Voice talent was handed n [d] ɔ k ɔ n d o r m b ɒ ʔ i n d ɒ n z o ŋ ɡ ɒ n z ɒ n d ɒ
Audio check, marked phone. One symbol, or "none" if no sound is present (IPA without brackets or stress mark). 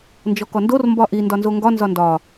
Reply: d͡ʒ